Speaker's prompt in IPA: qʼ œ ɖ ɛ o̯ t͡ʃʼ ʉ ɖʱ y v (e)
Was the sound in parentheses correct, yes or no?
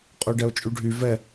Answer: no